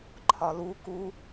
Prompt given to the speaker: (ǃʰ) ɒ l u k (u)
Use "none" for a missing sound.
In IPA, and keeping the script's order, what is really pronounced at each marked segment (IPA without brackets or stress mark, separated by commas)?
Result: ǃʰ, u